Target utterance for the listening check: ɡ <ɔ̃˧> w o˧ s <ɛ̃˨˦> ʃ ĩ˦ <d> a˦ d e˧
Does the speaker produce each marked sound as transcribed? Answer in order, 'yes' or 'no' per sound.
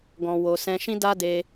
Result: yes, no, yes

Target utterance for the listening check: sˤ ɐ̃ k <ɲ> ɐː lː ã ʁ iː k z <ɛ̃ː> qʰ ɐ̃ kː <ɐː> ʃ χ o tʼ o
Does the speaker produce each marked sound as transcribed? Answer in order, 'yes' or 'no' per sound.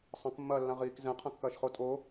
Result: no, no, yes

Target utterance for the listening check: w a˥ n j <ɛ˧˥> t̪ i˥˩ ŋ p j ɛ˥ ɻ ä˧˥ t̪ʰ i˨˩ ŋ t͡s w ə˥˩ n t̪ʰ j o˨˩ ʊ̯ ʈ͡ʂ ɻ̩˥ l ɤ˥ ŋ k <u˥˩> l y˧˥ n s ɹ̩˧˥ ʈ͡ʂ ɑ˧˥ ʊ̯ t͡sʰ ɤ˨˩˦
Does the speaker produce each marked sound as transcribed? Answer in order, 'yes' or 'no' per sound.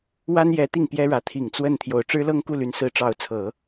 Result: yes, yes

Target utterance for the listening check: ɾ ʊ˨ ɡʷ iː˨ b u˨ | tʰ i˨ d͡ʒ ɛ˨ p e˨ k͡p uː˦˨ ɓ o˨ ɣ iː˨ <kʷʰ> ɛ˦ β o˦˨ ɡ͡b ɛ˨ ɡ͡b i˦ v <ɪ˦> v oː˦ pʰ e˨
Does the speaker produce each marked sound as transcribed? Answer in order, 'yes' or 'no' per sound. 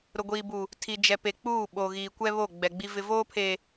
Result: no, yes

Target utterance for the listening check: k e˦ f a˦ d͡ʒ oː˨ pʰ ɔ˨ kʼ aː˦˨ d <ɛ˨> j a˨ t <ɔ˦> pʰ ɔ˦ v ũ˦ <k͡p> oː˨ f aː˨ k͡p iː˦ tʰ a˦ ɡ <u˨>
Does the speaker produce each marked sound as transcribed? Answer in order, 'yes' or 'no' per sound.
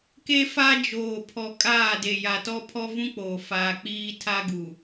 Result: no, yes, yes, yes

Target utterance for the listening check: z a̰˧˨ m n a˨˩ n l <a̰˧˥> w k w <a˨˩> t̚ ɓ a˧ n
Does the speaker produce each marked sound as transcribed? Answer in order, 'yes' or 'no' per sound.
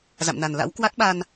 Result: yes, no

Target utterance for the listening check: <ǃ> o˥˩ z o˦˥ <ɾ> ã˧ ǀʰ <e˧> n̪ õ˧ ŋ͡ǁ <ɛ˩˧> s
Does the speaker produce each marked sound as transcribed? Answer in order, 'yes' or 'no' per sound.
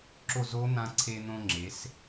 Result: no, no, yes, no

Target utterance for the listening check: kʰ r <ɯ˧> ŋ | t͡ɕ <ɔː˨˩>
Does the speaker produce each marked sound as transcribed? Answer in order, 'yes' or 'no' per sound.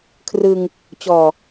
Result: yes, yes

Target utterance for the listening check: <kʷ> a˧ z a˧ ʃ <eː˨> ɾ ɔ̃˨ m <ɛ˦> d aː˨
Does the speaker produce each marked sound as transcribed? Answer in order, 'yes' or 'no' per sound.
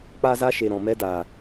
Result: no, no, no

